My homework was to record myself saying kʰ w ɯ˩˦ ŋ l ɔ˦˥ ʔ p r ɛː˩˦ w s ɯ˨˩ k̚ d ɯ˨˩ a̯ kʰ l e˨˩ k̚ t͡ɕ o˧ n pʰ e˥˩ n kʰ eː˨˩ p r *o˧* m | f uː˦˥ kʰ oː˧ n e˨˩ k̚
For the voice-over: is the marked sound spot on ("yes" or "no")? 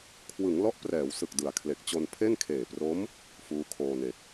no